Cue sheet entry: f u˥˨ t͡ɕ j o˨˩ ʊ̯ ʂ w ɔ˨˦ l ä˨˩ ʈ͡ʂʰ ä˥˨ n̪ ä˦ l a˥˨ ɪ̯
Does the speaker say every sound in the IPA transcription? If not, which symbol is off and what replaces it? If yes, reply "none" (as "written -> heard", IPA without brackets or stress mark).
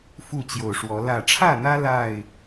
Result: none